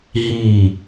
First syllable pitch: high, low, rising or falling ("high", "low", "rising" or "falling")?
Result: low